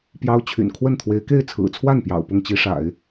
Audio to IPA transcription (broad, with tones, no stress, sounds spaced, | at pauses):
p j ɑ˥ ʊ̯ t͡ɕʰ y̰˨˩ n kʰ w ə˥˩ n t̪ʰ w e˧˥ ɪ̯ k e˥˩ ɪ̯ t͡sʰ ɹ̩˨˩ t͡sʰ w a˥˩ n p j ɑ̰˨˩ ʊ̯ p ʊ˥˩ ŋ t͡ɕ i˥ ʂ a̰˨˩˦ ɪ̯